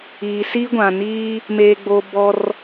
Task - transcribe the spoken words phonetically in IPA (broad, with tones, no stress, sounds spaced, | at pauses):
iː˨ s i˦ ɡʷ ã˨ n iː˦ | m eː˦ ɡ͡b oː˦ b ɔ˦ r